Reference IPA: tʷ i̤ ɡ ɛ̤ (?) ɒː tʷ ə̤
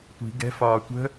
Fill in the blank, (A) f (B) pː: A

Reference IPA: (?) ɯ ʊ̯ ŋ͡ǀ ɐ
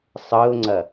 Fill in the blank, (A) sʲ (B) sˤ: B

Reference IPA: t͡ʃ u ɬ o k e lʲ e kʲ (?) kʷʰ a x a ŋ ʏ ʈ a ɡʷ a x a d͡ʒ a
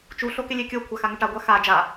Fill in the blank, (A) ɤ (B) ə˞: A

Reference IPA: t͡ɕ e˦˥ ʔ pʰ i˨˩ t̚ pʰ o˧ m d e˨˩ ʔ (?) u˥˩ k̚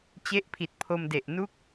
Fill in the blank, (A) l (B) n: B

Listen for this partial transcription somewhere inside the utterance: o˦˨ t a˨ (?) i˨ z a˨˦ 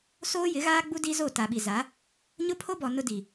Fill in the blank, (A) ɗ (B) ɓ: B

